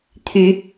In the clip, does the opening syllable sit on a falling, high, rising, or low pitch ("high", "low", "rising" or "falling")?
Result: rising